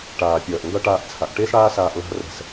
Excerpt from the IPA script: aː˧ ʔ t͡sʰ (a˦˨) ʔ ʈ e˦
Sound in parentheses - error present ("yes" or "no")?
yes